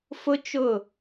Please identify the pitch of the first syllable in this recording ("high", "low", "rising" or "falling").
high